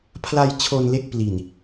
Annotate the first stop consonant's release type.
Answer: aspirated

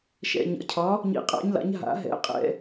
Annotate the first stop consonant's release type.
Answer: aspirated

